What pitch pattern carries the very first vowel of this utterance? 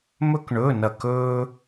high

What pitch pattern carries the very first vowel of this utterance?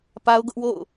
high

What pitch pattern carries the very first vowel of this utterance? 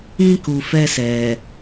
high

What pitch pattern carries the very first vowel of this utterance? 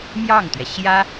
falling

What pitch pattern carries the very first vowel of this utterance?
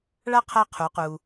high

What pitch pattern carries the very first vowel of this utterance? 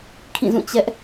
falling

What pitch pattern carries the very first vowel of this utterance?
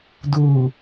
low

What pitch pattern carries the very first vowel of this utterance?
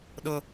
low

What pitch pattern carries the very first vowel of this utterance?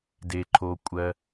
low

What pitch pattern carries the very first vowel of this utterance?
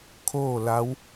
falling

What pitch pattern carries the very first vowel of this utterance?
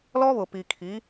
high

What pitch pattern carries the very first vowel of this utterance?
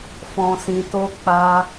low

